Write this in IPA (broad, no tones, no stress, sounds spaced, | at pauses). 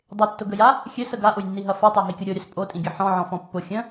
dˤ ɪ tː ʊ ɡ ə j a | xʲ ø s ə ɡ a ʔ ʊ j nː i ɦ ɐ f œ tˤ a ɦ i kʲ ʊ ɾʲ o ɾʲ œ s pʼ o tʼ ĩ ɡʲ ɐ ħ ɔ̃ ʕ ɔ̃ f ɔ̃ pː ʊ xʲ ə̃